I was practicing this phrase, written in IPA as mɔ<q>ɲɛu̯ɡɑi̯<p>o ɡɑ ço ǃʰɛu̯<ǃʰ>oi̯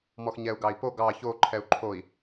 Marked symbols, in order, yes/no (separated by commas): no, yes, yes